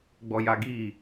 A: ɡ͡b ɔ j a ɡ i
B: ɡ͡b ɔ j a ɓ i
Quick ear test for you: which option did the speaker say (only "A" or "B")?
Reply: A